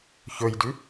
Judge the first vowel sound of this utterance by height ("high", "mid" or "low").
mid